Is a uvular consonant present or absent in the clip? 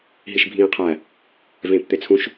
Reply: present